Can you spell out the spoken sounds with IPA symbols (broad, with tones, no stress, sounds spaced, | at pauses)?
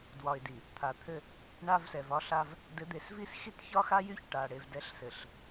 d w ɒ˨ ɪ̯ d i˨ | t̪ʰ a˨ t̪ʰ ɘ˦ | ɳ a˦ v s ɛ˨ v ɒ˦ ɬ a˦ v | d ɘ˨˦ d̪ e˨ s v i˦ s x i˦ t ç ɒ˦ x a˦ j y˦ ç ʈ a˨ ɽ e˨ v d ɛ˨˦ ɬ s ɘ˨ ɬ